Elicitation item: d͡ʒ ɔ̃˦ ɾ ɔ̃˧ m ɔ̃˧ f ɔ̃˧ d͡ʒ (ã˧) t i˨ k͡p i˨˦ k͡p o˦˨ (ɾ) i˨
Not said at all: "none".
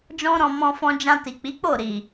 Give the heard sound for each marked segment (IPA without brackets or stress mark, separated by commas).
ã˧, ɾ